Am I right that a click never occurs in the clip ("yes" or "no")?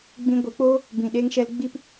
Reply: yes